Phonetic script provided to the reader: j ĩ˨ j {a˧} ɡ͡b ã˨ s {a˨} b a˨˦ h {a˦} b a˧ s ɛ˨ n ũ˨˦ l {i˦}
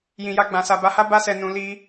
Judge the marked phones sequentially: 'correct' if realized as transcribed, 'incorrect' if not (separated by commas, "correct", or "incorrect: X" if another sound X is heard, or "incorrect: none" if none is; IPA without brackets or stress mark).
correct, correct, correct, correct